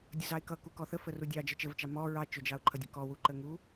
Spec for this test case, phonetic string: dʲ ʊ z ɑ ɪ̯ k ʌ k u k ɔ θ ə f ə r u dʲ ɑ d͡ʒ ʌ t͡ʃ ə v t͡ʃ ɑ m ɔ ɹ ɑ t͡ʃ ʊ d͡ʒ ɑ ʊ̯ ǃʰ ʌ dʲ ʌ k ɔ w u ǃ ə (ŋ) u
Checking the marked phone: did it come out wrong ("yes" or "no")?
no